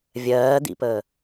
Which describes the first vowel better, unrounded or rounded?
unrounded